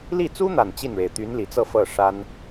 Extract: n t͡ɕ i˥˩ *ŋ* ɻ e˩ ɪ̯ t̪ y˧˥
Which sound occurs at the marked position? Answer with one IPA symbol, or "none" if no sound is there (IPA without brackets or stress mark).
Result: n